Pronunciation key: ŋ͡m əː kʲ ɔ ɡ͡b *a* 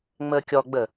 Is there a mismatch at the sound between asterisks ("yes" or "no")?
yes